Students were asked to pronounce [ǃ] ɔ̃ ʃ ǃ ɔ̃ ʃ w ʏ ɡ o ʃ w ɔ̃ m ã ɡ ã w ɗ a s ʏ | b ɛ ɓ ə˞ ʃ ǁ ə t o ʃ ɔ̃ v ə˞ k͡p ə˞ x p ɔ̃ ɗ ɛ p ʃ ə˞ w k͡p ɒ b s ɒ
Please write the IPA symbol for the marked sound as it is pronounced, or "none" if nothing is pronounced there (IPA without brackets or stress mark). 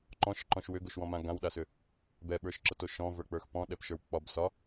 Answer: ǃ